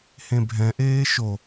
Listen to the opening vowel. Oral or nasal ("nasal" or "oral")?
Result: nasal